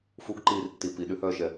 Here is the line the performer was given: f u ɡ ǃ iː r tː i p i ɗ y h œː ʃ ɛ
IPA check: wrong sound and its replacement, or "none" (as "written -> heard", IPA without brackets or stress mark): none